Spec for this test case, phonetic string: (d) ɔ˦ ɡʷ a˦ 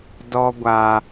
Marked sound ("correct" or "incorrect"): correct